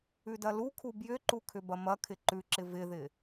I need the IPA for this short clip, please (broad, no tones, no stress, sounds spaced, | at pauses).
ʉ d ɐ l u kʰ u b j ʏ ǃ u kʰ ʏ b ɐ m ɐ kʰ ɪ ǃ ʉ ǁ ɪ v ɪ ð ɪ